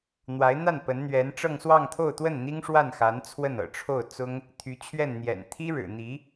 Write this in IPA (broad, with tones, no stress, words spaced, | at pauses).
n̪wa˧˥ɪ̯n̪a˥˩n pə˧˥nn̪ɥɛ˧˥nʈ͡ʂɤ˥˧ŋ swɑ˥˧ŋt̪ʰo˥˧ʊ̯t̪wə˥˩n n̪i˥ŋʂwa˥˩nxa˧˥n t͡sʰwə˥˩nɤ̰˨˩ʈ͡ʂʰo˥˩ʊ̯t͡sʊ˥ŋ | t̪ʰy˧˥t͡ɕʰɥɛ˥˩nn̪jɛ̰˨˩n t̪ʰi˥ɻɻ̩˨˩n̪i˧˥